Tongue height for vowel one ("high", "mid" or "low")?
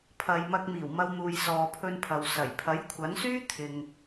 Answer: low